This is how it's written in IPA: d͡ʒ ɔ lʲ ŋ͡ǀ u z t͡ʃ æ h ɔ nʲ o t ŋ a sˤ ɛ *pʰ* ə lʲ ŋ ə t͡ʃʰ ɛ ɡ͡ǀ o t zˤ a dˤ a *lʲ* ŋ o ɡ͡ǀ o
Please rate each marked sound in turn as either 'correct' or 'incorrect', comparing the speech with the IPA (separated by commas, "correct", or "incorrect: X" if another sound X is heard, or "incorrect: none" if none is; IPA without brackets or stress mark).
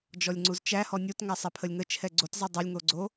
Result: correct, correct